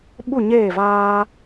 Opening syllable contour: falling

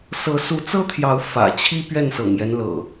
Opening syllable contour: rising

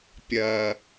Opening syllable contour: low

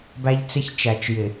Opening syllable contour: high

